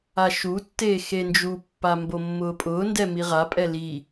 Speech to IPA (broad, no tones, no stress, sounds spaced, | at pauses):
a ʃ u tː eː x e n d͡ʒ u pː a m b o mː ʊː pʼ ʊː n d ɛ m i ʁ a pʼ ɛ l i